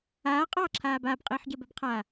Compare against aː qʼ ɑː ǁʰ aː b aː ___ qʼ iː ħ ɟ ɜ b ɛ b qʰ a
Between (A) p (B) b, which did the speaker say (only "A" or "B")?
B